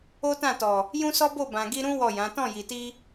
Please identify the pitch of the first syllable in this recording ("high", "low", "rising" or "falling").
high